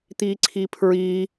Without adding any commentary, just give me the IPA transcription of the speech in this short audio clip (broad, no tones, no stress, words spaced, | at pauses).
t̪iǀʰipʰɹi